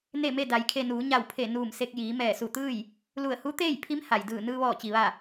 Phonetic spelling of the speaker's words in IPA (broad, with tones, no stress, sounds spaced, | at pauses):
n e˥˨ m e˥˨ d a˩˧ j kʰ e˧ n uː˩˧ ɲ a˧˩ w pʰ e˧˩ n uː˧˩ m s e˧ k̚ j iː˩˧ m ɛː˧˩ s u˧˩ t̪ ɯː˥˨ j | l u˧˩ ə̯ h u˧˥ t̪ eː˥˨ j pʰ i˧˥ m h a˩ j d ɯː˧˩ n ɯː˧ ʋ ɔː˧˩ t͡ɕ i˩ ʋ a˧˩